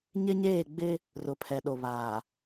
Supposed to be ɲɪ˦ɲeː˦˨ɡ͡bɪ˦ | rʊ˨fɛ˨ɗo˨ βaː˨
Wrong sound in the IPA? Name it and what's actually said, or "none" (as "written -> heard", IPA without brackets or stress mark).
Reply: f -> pʰ